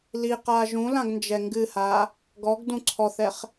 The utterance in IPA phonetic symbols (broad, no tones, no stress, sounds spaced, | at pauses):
l i q aː ʒ ũ l ã ɡ n d͡ʒ ɛ ŋ ɡ ɨ h aː | ɡ ɔ ɡ d ũ ǀʰ ɔ θ ɛ χ